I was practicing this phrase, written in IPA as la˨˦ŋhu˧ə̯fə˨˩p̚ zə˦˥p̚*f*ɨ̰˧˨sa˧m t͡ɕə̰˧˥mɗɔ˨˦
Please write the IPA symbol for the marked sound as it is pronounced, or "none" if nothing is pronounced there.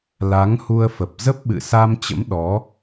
ɓ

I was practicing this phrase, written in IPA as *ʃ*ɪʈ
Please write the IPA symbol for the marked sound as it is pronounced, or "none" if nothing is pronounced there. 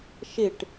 ʃ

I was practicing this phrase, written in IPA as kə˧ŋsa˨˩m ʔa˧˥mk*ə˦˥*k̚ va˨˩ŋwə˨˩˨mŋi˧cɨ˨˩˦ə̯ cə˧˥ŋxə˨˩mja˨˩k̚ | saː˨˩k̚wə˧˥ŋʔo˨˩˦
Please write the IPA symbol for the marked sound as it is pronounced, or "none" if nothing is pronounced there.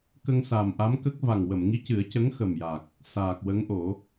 ə˦˥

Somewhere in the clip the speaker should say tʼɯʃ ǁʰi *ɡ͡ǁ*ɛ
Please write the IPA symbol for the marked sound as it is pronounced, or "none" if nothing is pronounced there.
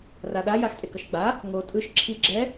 ɡ͡ǁ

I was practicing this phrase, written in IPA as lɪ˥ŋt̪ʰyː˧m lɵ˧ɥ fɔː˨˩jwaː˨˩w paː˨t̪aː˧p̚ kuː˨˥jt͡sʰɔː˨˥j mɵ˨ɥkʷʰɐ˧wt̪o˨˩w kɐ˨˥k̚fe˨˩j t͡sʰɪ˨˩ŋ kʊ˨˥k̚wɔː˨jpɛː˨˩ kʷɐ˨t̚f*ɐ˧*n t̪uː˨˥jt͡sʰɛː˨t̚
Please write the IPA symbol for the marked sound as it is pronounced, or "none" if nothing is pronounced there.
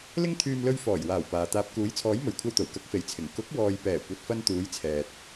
ɐ˧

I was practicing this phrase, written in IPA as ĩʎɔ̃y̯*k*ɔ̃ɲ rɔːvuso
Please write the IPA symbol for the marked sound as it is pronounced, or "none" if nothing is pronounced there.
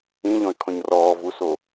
kʰ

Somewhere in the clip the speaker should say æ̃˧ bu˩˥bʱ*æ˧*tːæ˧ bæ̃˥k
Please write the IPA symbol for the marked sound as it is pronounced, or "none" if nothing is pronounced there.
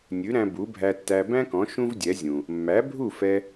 æ˧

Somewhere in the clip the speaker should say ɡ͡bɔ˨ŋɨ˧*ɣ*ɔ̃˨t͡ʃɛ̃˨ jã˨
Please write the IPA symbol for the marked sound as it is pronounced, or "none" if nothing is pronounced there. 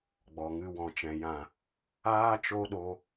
w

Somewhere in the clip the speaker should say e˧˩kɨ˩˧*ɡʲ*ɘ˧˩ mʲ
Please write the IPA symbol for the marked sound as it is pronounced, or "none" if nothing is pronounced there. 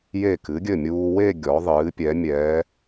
ɡʲ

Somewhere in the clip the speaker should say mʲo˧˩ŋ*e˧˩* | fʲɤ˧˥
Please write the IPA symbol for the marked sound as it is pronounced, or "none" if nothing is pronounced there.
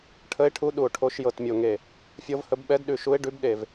e˧˩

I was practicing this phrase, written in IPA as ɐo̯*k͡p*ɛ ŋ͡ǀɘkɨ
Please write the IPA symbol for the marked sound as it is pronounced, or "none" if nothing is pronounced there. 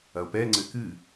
p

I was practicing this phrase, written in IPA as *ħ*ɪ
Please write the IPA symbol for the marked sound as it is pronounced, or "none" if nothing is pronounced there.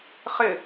χ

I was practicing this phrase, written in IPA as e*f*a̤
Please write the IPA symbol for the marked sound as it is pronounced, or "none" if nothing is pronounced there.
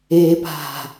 p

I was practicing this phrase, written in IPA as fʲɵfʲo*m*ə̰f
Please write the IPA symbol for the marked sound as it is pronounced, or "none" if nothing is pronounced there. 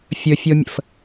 mʲ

